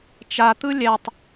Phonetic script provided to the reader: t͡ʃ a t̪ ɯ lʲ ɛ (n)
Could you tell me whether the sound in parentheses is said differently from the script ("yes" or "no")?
yes